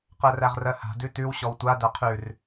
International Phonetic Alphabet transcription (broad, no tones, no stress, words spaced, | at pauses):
qɜræʁrɜha̤ dʉtʉw ɕɔwtʷa dæqʰʉr